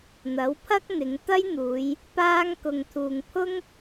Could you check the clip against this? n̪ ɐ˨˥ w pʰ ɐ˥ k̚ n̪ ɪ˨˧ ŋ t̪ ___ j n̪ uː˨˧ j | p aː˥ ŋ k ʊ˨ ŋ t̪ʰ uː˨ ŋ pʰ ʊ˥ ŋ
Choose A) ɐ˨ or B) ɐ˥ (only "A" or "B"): B